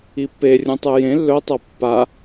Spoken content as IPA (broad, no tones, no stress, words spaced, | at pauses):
ipːe rʲũtˤɨjẽ lːɵtˤɐ pːa